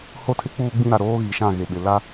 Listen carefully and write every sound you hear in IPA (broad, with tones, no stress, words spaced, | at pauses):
ho˦tʰɪ˦ k͡puː˦ɡ͡bĩ˦ɾa˨ ɾoː˦ ɣi˨ʃã˦˨ɣe˨ɓɪ˨ la˦